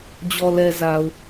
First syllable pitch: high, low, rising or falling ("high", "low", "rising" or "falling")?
low